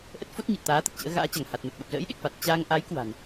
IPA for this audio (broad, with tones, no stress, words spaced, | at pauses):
ʔə˦˥t̚fo˦˥t̚ɲɨ˨˩t̚ t̪aː˨˦t̪ə˨˩t̚ t͡ɕə̰ː˧˥ɣa̰ː˧˥t͡ɕa˧˩ŋ ha˨˩t̚mə˨˩t̚ɓə˨˩p̚ zə̰ː˧˥jɗe˨˩k̚fa˨˩t̚ t͡ɕaː˧ŋ ʔa˨˦j kwa̤˨˩n